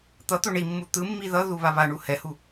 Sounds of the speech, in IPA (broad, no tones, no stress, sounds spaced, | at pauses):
t̪ ʌ t̪ o ɳ i mː u t̪ ɯ mː i ð ʌ ð u β a β a ɳ u h ɛ h u